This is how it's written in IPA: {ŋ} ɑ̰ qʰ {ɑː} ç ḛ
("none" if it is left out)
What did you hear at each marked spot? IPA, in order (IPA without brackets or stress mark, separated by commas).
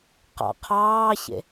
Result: q, ɑː